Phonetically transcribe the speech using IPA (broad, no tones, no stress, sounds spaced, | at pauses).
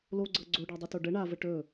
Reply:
l o ɡ͡ǀ ɤ ɡ͡ǀ o ɖ a dˤ ɵ t o ɖ ə ɳ a v ə ʈ ɵ